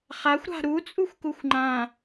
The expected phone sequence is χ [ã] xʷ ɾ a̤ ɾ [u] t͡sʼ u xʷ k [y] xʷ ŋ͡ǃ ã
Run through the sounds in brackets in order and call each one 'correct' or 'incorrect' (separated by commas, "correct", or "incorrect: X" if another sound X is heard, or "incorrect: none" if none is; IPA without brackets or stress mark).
incorrect: a, correct, incorrect: u